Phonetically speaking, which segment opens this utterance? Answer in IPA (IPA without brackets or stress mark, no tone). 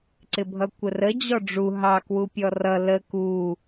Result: ǀ